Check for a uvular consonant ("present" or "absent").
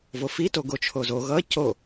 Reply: absent